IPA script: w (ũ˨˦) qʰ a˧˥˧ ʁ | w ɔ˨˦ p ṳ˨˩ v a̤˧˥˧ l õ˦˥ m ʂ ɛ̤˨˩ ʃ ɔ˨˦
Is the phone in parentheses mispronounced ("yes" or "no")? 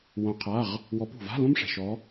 yes